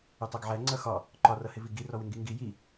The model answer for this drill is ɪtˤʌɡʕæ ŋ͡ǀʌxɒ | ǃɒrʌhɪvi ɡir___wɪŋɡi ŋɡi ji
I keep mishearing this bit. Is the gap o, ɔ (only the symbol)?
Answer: ɔ